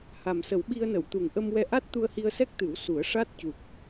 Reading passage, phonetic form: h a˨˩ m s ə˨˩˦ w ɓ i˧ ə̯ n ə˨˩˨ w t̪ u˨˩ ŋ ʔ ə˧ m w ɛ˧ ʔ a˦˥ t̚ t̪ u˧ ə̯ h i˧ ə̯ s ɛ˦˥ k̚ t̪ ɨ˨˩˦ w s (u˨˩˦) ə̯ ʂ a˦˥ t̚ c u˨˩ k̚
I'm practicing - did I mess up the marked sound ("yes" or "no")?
no